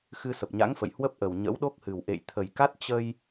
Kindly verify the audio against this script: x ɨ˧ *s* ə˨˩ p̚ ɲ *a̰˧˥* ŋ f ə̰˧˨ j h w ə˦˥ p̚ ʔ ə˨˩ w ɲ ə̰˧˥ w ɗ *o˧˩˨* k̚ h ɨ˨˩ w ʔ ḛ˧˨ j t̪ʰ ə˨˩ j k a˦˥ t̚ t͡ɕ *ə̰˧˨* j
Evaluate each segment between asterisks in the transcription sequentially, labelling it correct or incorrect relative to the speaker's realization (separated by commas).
correct, correct, incorrect, incorrect